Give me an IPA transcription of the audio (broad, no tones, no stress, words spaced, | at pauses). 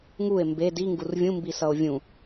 ŋue̯ mbe diŋɡur vʲũmbisʌo̯ vʲũ